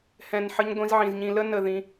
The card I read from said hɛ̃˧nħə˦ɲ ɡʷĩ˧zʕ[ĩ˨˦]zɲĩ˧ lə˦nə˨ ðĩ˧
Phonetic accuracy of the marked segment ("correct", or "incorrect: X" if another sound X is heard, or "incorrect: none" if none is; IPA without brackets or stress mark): incorrect: ĩ˨